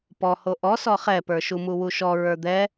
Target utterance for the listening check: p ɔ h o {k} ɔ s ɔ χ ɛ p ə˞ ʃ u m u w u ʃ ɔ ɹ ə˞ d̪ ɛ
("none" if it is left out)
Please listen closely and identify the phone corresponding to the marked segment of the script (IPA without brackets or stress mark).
ʔ